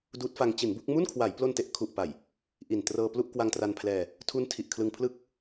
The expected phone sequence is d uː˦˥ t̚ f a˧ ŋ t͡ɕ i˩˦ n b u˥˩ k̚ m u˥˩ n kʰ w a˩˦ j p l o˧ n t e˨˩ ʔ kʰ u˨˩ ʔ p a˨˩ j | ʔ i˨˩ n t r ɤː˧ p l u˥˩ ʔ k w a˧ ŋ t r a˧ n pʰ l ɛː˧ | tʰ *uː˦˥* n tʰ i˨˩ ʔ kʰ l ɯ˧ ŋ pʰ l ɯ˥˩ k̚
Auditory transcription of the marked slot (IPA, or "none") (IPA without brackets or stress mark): u˦˥